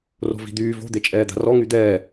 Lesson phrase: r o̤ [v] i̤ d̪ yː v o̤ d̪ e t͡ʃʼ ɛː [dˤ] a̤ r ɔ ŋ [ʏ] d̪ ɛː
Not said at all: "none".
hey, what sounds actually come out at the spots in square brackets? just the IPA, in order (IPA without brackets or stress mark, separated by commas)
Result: v, d̪, y